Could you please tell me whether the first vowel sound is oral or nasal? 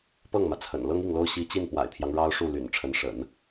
oral